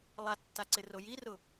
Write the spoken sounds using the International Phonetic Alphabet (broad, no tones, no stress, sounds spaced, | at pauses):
lˠ a tː a ǀ ɪ r o j i r ʊ